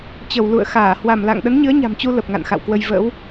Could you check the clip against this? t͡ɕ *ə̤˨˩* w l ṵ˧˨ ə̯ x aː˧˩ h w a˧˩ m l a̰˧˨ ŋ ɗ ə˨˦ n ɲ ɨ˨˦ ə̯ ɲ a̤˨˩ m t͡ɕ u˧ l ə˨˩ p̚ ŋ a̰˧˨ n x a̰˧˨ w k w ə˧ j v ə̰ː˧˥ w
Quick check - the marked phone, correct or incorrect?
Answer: incorrect